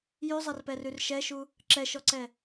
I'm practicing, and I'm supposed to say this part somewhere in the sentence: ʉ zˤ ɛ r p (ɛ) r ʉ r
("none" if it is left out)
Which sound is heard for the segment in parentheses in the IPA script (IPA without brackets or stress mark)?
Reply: ɛ